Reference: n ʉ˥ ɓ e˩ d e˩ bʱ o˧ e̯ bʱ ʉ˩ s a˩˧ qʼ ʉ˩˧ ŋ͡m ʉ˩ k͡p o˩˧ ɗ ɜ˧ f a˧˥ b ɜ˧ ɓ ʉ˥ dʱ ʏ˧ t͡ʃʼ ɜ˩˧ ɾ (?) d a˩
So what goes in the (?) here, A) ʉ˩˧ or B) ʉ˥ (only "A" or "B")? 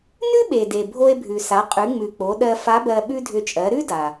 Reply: B